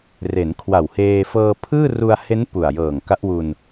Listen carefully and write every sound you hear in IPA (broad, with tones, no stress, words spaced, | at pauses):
re˩˦n kʰwa˨˩wheː˧ fɤː˧pʰɯː˥˩ ru˧a̯he˦˥n pu˨˩a̯jɤː˨˩ŋ ka˦˥ʔwu˧n